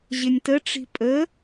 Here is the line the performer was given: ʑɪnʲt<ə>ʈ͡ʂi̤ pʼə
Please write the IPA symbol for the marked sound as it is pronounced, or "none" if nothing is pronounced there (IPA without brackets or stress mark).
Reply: ə